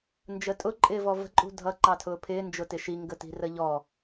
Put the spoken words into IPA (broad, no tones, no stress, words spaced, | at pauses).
nd͡ʒətʼʊ ǃʼɪːvɔvə̤ ǃʼṳdʱʌ ǃɑtʰʊːpʰɪː nd͡ʒʊtɪʃi ŋɡəti̤rəʎɔ